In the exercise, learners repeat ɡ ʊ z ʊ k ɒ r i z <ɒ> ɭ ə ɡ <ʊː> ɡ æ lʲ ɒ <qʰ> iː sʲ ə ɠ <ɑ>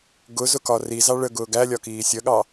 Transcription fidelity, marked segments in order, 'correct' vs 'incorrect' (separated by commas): incorrect, correct, incorrect, correct